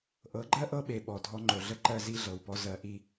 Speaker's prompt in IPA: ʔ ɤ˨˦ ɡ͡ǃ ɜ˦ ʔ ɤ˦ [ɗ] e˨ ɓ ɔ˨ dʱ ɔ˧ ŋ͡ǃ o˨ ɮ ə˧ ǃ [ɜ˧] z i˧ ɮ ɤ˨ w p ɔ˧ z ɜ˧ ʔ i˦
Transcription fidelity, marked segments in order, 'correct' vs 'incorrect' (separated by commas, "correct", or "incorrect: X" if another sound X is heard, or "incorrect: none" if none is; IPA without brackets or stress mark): incorrect: ɓ, correct